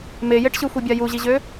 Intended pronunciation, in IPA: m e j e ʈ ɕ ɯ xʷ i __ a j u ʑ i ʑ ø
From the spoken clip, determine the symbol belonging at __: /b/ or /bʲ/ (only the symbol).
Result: bʲ